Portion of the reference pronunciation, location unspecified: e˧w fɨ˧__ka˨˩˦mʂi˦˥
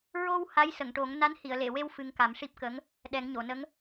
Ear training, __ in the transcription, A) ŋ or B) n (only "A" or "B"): A